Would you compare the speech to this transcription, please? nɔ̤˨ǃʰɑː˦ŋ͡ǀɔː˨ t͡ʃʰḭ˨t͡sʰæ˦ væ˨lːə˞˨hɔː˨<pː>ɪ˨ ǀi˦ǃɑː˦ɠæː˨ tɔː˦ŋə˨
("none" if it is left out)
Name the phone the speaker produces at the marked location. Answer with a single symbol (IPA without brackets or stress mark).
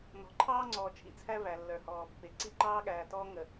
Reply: pː